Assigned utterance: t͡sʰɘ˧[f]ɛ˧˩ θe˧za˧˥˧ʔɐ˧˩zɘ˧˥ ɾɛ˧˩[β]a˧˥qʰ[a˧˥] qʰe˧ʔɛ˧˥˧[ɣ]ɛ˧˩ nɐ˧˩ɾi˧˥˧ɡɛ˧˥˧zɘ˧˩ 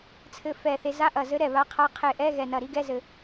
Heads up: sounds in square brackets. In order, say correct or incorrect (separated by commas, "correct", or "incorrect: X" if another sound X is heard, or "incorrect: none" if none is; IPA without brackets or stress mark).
correct, correct, correct, correct